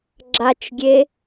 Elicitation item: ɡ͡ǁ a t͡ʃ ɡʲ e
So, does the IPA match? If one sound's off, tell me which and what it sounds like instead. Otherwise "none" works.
none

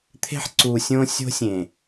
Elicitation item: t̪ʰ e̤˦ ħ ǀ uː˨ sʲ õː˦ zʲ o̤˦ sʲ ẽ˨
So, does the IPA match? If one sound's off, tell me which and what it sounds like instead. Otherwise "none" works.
zʲ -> sʲ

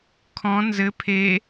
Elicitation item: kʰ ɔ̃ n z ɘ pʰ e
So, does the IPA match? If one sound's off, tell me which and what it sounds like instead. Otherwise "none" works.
none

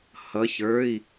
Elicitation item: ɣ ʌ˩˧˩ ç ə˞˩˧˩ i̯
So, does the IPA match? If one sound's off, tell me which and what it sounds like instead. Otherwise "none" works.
ɣ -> h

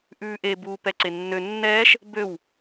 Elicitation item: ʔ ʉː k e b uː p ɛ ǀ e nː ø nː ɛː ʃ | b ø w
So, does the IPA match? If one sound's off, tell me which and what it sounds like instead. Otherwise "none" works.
k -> ʔ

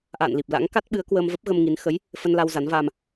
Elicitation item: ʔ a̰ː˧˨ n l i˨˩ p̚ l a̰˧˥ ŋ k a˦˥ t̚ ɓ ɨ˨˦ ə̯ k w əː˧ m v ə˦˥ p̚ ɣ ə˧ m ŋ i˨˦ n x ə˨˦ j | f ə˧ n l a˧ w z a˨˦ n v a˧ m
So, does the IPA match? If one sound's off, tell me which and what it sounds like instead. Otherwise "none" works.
none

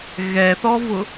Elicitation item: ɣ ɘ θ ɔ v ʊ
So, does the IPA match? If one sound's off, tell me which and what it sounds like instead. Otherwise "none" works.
ɘ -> ɛ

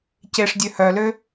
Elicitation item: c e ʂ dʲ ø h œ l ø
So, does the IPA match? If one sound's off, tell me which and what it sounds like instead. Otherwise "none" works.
none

